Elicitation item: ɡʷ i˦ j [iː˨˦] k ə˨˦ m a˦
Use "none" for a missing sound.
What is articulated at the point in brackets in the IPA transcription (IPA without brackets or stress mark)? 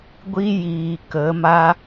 iː˨